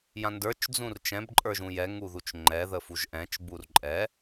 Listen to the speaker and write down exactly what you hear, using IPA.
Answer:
j ã n d ə˞ t͡ʃ d͡z ũ r t͡ʃ ɛ̃ b ǃʼ ə˞ ʒ ũ j ɛ ŋ u ð u t͡ʃ ŋ͡ǃ ɛ ð ə f u ʒ ʔ ɛ̃ t͡ʃ b u r ǃʼ ɛ

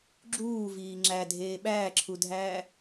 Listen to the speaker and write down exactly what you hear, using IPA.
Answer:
ɡ͡ǁ uː v iː ŋ͡ǁ æ dʱ eː ɓ æː ǁʰ u dʱ æː

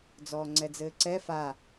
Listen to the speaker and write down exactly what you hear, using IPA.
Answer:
d͡z ɔː ŋ͡ǀ ɛ d͡z ɘː ǀ ɛ f a

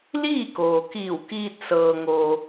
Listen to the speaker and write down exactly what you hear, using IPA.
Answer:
l iː˥˨ k oː˩ k iː˧˩ w k iː˧ t̚ s ɤː˧ ŋ o˧

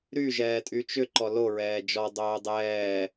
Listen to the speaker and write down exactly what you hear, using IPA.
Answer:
ɾ y ʒ ɛː tʼ y t͡ʃ ʏ ǃ ɔ l o ɹ ɛː d͡ʒ ɔ dˤ oː dˤ ɛː

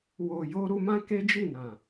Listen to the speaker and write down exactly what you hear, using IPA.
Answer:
w o˨ j o˧ ɾ u˧ m ã˦ k e˦ d͡ʒ i˦˨ n ã˨

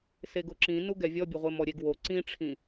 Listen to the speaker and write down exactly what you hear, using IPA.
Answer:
s e ɡ ʊ ǁ ĩ n u ɡ ɛ vʲ ɔ bʲ ʊ ʁʷ e m ɔ ɾʲ e ɡ w o ǀ ĩ ʈ͡ʂʰ ĩ

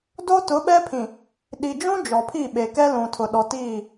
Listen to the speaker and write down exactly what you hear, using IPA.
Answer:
d o˦ t ʊ˨˦ ɓ ɛ˦ pʰ ĩ˨ | ɗ i˨ d͡ʒ ũ˦ d͡ʒ ɔ˨ pʰ i˦˨ ɓ e˨ k ɛ˦ l ũ˨ tʰ ʊ˨ ɗ ɔ˨ t iː˦˨

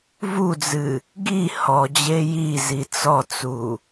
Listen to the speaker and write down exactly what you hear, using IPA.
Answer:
v u d͡z ɨ | ɡ i h ɔ d͡ʑ e j i z i t͡s ɔ t͡s u

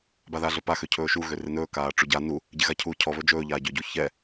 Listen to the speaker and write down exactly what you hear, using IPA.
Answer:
b a ð aː ɮ ɵ p a x ø cʰ ɵː ʃ u ɣ ø r ɪ n ɵː k aː ʈ͡ʂ u ɟ a n u | ɟ e ɣ a cʰ uː cʰ ɔ β ɵ d͡ʒ ɵː ʎ aː ɟ ø ɟ u ç ɛ

